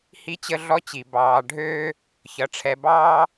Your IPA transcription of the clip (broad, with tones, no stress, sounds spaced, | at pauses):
h i˦ t͡ɕ ə˦ ɮ ɔ˦ t͡ɕ i˩ b ɑː˨ ɖʱ øː˥ | ç ʌ˩ ʈ͡ʂʰ ɛ˨ b ɑː˥